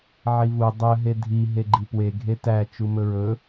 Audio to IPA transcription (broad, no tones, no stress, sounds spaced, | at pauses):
ʕ i v u dˤ ɵ ɦ e dʱ i ɦ e ɡ͡ǃ i p w e ɡʱ e t æ t͡ʃ u m ɵ ɹ ɵ